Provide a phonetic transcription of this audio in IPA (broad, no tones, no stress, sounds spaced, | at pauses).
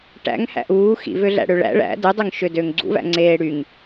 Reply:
ʈ æ̰ ŋ h æ̰ ʔ uː x ḭ v ø ɮ æ̰ ɽ ø ɭ æ̰ ɭ æ̰ d ɯ dˤ ø ŋ ʃ ø d øː ŋ ɡ͡ǀ ṵ v æ̰ ŋ͡ǀ eː ɽ y ŋ